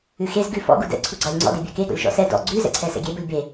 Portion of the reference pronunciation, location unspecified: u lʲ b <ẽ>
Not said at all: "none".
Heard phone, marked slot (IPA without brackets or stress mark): e